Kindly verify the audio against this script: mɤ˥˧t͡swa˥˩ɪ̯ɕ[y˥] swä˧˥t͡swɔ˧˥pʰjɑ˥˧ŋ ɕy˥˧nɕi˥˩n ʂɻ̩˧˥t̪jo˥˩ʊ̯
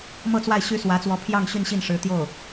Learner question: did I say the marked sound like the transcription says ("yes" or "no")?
yes